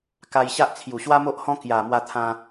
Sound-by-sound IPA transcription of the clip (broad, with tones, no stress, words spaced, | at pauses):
ka˧jɕa˦ʔ t͡sʰju˨˩ɕwa˦mo˦ʔhɔ̃˦ kja˨˩ mwa˧t̪ʰã˧